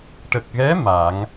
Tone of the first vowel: low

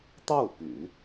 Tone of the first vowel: falling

